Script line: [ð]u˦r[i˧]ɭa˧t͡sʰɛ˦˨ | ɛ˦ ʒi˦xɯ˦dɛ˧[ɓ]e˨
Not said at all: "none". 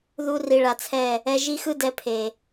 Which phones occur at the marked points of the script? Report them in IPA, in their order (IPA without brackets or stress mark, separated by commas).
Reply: ð, i˧, pʰ